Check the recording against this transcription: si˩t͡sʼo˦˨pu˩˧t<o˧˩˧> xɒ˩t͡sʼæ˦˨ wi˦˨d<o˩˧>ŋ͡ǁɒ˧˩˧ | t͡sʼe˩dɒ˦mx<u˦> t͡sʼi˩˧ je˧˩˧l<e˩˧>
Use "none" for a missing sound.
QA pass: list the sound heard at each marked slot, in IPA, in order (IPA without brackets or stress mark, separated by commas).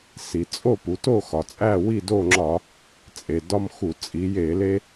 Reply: o˦˨, o˦˨, u˧˩˧, e˦